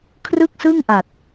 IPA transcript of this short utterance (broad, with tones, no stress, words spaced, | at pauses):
kʰrɯ˥˩k̚sɯ˥˩ŋʔa˨˩t̚